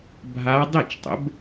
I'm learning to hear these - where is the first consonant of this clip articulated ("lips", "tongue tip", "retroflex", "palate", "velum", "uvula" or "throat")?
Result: lips